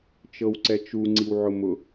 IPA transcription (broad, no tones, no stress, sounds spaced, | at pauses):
t͡ʃ ɤ w ǀ ɛ t͡ʃ u ŋ͡ǀ i w ʕ ʊ m ʊ